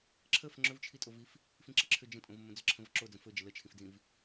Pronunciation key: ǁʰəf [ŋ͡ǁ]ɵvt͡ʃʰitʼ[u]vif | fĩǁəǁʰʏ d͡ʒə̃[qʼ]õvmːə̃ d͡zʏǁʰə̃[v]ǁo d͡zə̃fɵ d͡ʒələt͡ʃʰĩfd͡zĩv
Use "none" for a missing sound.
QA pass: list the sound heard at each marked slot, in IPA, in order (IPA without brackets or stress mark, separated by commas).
ŋ͡ǁ, o, tʼ, v